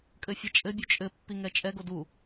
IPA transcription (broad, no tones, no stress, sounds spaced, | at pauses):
kʼ ɘ fʲ ɛ t͡ʃʼ ɘ bʲ u t͡ʃʼ ɘ pː i ŋ ɛ t͡ʃʼ ɛ ɡ o d u